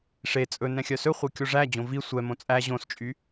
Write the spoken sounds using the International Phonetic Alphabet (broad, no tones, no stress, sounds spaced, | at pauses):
ʂ e t͡sʼ ɵ n ɛ̃ xʲ œ s ɵ χʷ e kʲ o ʐ æ d͡ʑ õ v i sʷ ɛ m õ t͡sʼ æ ʑ õ s t͡ʃʼ y